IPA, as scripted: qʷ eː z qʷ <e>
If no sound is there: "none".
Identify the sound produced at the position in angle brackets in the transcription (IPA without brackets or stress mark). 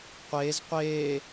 eː